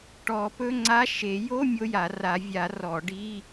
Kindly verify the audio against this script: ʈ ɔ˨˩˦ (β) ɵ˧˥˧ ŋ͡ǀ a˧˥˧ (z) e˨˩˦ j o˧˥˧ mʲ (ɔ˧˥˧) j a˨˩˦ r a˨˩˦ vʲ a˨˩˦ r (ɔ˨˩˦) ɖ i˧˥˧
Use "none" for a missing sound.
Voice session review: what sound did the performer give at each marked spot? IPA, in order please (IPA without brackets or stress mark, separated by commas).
p, ʃ, o˧˥˧, ɔ˨˩˦